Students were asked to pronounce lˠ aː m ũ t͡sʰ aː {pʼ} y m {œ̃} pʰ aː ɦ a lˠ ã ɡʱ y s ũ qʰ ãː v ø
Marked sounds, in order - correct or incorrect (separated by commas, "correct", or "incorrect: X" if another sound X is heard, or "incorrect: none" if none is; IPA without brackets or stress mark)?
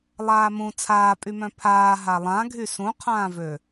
correct, correct